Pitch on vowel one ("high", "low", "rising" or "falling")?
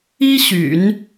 high